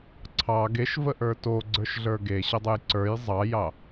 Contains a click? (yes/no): yes